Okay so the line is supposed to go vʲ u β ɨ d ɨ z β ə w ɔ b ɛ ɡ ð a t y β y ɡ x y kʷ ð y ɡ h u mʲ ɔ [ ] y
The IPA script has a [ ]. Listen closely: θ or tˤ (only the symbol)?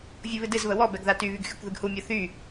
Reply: θ